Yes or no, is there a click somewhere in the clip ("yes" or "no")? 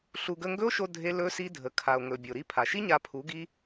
no